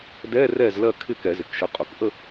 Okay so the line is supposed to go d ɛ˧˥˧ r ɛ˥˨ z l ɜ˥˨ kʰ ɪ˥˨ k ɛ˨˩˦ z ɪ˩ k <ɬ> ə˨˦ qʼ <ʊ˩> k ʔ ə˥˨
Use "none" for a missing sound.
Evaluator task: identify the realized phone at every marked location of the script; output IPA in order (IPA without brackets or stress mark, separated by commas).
ʃ, ʊ˩